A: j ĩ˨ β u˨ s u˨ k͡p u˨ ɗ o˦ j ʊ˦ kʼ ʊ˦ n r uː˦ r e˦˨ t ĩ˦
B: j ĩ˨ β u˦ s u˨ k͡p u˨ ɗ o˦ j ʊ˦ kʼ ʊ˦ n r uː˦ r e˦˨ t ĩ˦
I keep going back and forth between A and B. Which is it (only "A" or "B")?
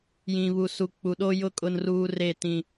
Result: A